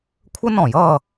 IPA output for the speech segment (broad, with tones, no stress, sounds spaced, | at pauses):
kʷʰ ə˥ n ɔ̃˧˩˧ j ʌː˥˨